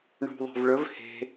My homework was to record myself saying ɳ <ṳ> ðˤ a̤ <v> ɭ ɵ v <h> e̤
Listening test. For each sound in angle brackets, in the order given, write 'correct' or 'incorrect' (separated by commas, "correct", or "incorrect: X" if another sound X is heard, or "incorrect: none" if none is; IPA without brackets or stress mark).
correct, correct, correct